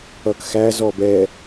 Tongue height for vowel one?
mid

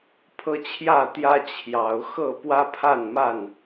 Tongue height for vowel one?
mid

